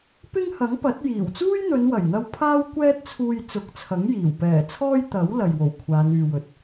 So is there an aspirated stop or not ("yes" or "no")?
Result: yes